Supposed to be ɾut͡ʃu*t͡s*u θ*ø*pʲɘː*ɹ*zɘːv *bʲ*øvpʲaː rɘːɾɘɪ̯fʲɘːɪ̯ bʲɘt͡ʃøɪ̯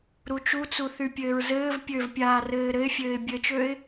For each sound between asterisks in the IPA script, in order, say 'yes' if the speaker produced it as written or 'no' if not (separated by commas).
yes, no, yes, no